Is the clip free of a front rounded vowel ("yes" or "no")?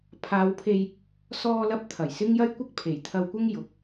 yes